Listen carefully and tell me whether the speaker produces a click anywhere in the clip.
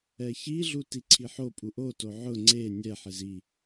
yes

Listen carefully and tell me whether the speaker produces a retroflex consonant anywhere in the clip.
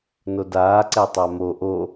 no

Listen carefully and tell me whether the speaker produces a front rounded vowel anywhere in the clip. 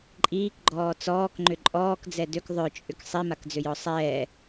yes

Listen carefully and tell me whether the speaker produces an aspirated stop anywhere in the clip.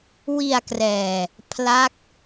yes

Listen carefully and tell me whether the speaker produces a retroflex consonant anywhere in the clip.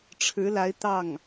yes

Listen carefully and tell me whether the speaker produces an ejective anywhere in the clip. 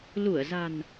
no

